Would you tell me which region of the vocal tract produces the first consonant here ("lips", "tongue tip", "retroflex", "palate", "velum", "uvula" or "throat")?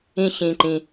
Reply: palate